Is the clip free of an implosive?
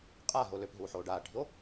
yes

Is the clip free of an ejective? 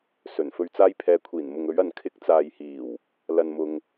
yes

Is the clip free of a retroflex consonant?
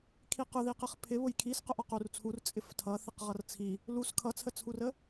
yes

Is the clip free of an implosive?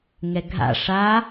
yes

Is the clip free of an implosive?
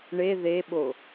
no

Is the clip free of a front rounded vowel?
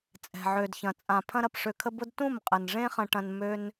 no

